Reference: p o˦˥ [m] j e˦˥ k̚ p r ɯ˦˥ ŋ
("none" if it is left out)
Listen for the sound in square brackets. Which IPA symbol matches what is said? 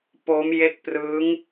m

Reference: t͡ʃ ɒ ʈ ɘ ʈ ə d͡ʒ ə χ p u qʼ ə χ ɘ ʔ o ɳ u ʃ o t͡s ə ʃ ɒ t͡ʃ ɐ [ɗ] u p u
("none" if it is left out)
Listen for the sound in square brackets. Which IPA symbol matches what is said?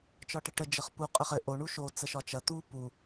t̪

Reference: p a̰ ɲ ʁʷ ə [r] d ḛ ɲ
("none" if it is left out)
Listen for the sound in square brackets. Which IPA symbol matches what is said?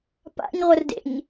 r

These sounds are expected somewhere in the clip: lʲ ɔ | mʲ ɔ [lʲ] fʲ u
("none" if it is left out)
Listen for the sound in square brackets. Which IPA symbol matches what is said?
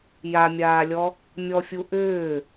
none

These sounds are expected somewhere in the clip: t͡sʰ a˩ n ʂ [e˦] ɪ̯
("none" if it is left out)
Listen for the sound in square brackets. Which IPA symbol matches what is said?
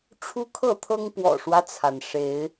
e˨˦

